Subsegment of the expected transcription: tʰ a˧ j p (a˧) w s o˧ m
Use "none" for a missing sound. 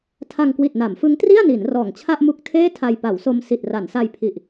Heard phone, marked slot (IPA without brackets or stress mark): a˩˦